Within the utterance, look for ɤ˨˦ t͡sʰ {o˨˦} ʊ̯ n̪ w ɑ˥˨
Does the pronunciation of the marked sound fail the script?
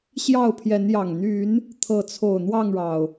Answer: yes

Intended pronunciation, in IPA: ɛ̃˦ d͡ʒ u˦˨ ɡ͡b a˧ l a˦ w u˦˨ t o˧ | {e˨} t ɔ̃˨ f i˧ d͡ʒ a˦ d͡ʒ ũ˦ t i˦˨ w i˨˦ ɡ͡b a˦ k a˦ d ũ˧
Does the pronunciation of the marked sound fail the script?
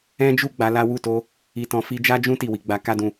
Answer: yes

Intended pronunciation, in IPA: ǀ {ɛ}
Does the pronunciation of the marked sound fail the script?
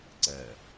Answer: no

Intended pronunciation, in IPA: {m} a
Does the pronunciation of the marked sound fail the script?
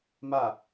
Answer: no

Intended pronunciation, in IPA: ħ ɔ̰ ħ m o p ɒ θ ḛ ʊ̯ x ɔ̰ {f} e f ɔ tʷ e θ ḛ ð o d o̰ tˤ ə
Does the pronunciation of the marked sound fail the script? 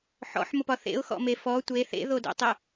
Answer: yes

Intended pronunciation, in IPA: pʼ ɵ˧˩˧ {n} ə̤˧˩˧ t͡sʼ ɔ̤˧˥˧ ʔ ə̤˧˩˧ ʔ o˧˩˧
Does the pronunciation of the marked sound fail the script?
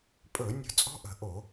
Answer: yes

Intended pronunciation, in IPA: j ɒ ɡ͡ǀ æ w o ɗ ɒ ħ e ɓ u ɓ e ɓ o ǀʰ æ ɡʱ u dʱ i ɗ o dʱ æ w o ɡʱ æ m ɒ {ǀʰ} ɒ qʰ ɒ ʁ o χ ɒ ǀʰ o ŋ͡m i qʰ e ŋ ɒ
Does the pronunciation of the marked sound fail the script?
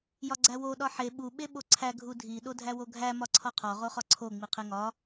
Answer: no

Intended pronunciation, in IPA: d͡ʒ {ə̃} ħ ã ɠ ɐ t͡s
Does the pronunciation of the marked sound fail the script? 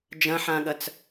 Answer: yes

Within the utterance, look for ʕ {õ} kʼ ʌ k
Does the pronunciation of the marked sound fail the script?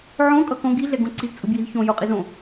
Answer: no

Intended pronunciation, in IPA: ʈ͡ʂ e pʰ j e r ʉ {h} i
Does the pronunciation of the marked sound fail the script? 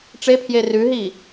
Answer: yes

